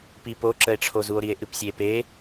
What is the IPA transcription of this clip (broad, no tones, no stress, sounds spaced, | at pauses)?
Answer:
p i p o ǁ ə e̯ ʈ͡ʂʰ o z u o̯ ɾ i e̯ ʔ ɨ p sʲ e p e